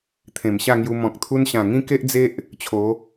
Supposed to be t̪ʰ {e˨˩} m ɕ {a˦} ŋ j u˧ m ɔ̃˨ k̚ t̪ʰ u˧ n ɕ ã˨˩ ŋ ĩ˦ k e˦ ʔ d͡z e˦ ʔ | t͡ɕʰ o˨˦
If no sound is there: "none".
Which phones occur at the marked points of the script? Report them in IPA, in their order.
ẽ˨˩, a˥˧

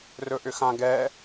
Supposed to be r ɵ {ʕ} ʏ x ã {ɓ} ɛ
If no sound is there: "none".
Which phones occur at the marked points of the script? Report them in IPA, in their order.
ʔ, ɡ

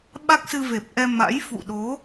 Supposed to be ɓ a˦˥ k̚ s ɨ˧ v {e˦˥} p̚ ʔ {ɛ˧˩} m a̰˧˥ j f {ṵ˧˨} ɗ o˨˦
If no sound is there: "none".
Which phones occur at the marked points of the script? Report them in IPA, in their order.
e˨˩, ɛ˧, ṵ˧˨

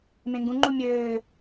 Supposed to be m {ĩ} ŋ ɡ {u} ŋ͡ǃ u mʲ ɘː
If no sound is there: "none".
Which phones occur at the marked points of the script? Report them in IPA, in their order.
ẽ, ũ

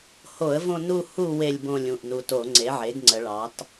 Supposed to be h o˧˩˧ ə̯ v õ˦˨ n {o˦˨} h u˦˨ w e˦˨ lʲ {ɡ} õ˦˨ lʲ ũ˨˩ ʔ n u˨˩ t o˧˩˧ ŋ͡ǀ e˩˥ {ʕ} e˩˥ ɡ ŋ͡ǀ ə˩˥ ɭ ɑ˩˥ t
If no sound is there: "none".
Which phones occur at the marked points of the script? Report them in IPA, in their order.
u˦˨, b, ʕ

